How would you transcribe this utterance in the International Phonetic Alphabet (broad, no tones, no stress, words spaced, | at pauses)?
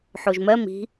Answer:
ħoʒmɜ mi̤